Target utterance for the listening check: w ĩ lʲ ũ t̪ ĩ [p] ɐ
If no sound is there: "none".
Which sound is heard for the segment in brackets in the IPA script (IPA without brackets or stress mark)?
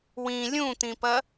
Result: p